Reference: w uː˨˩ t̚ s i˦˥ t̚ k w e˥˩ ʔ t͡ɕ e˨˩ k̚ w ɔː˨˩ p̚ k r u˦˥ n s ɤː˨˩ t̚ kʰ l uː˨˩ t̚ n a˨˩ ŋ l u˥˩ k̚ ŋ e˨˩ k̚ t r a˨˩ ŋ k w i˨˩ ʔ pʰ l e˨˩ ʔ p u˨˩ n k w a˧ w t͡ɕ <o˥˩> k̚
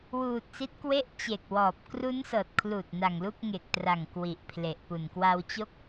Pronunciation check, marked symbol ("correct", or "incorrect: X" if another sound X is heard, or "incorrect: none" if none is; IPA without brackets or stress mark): correct